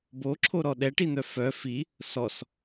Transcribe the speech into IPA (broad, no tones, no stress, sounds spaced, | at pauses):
b o ǁʰ o ɾ ɔ ɗ ɛ ʈ i n̪ œ f œ f i | s ɔ s